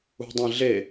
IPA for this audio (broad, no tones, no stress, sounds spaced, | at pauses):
ṳ dˤ ĩ ɮ e